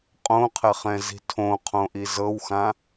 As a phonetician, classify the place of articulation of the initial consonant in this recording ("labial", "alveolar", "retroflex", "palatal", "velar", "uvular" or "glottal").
uvular